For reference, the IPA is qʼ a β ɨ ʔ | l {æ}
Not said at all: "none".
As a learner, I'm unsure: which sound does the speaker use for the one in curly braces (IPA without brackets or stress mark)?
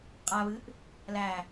æ